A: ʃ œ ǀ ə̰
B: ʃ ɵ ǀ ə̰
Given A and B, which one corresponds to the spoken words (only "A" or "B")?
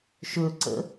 B